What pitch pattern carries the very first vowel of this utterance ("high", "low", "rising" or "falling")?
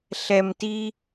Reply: low